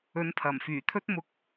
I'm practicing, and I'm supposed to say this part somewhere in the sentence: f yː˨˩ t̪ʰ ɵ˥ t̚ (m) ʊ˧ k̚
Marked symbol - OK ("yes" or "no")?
yes